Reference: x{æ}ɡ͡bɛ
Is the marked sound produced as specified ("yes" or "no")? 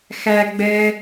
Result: yes